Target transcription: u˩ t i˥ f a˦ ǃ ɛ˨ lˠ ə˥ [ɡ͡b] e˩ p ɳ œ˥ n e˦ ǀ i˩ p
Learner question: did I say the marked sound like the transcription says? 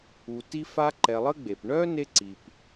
yes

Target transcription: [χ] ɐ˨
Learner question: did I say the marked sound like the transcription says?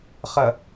yes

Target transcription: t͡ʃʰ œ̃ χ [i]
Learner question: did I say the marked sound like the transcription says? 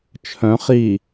yes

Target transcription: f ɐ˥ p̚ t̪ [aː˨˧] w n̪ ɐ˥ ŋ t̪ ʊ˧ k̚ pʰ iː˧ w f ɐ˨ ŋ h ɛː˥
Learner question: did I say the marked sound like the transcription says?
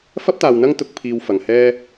no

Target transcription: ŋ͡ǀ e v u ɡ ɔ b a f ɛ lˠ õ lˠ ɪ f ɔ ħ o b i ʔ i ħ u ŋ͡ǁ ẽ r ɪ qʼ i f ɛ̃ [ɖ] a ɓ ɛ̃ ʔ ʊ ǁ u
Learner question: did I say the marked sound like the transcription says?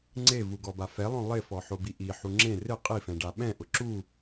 yes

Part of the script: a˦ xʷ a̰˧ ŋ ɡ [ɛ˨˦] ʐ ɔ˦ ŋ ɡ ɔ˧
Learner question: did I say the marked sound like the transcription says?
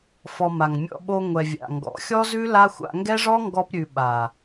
no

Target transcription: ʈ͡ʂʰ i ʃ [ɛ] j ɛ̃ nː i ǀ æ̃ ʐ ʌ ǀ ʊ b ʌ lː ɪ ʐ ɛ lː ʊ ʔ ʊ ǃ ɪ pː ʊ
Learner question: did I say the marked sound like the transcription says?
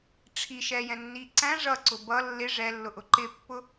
yes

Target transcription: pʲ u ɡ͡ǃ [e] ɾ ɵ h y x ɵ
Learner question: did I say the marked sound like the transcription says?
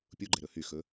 no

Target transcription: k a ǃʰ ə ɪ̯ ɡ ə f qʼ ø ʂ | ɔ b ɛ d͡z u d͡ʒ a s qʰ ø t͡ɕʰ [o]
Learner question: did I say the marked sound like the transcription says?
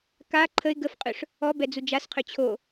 yes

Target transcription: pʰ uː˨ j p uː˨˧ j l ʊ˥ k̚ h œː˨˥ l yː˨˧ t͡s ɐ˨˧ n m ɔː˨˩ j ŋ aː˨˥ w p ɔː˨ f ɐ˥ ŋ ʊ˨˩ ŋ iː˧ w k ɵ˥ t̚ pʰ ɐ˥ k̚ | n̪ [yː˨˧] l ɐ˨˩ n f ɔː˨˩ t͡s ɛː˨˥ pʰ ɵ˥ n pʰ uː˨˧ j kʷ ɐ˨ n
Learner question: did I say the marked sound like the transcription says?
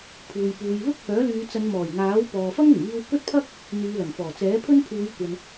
yes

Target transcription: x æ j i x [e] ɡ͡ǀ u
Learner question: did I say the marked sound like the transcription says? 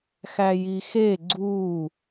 yes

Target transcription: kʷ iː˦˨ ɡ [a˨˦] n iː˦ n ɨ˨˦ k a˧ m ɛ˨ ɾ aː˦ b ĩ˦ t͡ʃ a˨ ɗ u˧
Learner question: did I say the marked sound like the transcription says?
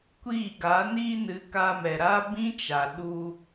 yes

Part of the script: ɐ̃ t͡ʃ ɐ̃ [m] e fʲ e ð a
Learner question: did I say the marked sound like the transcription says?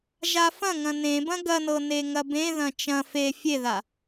no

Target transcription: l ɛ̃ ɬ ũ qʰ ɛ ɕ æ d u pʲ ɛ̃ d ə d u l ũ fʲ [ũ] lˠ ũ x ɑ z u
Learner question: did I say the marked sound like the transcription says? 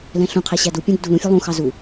no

